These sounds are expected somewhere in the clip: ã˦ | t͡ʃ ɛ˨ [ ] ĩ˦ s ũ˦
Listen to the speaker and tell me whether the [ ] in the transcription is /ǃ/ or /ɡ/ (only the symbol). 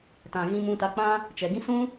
ɡ